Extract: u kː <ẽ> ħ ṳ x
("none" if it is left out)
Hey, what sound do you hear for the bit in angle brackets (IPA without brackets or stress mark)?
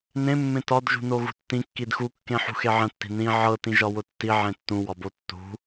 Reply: ẽ